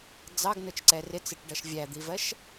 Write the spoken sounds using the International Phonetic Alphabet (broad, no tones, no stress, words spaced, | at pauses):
d͡zɑɡnʊt͡ʃǀɛ rɪt͡sɪʈɖʌʃ vʲæd̪ivɜʃ